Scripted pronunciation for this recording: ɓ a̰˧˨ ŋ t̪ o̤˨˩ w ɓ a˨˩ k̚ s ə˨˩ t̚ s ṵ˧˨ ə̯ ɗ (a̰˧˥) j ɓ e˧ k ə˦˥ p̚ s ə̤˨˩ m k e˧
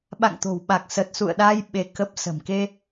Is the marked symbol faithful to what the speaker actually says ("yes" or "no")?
no